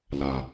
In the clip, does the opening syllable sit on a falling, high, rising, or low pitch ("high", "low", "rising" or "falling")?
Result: low